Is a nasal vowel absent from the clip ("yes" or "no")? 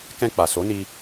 no